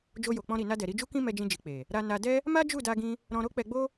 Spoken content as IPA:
d͡ʒ o˧ j o˨ k͡p ɔ̃˧ ɾ i˨ n a˧ d ɛ˨ ɾ i˧ d͡ʒ u˦ k ĩ˦ m ɛ˧ d͡ʒ ĩ˧ d͡ʒ i˨ k͡p e˨ | ɾ a˧ n a˧ d ɛ˦ | m a˦ d͡ʒ u˦˨ d a˧ ɡ ĩ˧ | ɾ ɔ̃˧ ɾ o˦ k͡p ɛ˧ ɡ͡b o˦

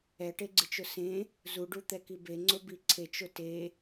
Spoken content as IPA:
ɛ ʈ e ɡ͡ǀ ɨ t͡ʃ ʊ s ẽ | z u ɖ u t̪ ɛ k i b e ŋ͡ǀ ʊ b i ǀʰ e t͡ʃ ʊ t e

